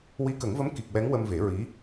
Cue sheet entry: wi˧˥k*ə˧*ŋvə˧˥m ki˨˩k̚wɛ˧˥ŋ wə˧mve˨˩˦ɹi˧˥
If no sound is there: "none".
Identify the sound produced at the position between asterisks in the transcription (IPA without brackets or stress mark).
ə˨˩˦